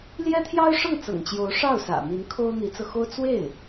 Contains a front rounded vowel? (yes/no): no